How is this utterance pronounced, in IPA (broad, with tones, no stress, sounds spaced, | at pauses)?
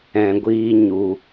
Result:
ɛ̃˧ ɡʷ iː˦ ɲ u˧